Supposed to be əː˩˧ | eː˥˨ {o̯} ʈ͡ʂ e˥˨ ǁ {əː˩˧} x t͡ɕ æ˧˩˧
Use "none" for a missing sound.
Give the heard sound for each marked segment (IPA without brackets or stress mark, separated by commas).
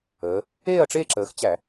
ɐ̯, əː˩˧